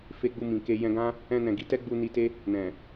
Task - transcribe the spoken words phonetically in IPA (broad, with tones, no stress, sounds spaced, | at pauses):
f e˧ ɡ͡b u˧ m ĩ˨ k e˧ j ɛ̃˧ ɡ ã˦ | ɛ̃˧ n ɛ̃˨ ɡ i˨˦ t ɛ˦ ɡ͡b u˧ n i˧ t e˦ | n ɛ̃˨